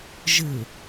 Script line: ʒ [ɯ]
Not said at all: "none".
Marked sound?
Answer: ɯ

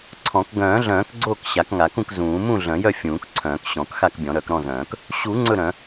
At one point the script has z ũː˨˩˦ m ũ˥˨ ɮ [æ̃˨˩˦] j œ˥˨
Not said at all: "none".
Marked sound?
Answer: œ̃˨˩˦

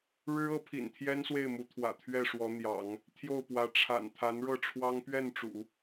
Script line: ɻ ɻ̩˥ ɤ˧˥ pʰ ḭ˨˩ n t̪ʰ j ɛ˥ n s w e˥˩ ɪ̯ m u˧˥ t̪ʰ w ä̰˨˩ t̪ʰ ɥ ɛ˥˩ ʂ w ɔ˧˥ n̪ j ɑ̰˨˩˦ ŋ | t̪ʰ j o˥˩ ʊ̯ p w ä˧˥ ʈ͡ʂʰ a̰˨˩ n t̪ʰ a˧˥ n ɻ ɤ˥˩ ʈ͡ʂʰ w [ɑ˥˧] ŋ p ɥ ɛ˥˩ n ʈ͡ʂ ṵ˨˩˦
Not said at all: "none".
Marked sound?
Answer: ɑ˥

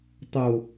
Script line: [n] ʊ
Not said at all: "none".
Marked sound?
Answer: tˤ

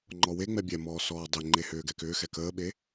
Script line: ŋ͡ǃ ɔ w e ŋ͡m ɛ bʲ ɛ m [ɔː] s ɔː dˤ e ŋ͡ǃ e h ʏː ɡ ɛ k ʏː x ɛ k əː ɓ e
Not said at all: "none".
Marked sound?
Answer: ɔː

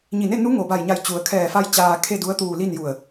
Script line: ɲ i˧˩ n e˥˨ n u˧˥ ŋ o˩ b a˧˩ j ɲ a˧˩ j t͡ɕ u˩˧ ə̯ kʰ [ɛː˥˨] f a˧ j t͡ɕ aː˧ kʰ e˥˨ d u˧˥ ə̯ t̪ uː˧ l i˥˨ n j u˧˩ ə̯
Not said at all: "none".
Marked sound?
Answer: ɛː˧˩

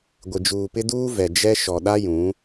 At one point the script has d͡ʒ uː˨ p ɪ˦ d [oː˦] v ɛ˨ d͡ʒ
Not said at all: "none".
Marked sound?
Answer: uː˦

